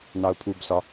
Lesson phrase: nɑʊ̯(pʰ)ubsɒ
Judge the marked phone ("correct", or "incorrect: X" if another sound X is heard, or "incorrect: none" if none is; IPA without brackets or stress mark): correct